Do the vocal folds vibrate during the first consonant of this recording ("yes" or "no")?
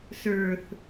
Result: no